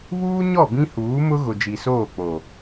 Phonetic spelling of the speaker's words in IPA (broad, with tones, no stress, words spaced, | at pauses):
βuː˦ ɲɔ˦˨ bĩ˦huː˨˦mʊ˦ ɣʊ˨d͡ʒi˨soː˦˨k͡po˨